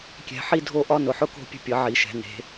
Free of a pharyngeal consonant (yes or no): no